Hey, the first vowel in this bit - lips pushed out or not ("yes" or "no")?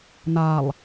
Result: no